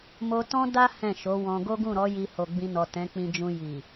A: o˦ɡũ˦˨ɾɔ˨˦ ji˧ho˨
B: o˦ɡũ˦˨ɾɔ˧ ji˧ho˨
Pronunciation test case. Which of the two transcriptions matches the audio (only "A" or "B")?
A